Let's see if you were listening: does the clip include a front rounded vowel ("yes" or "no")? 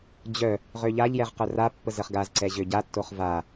yes